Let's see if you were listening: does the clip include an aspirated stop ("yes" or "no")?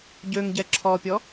yes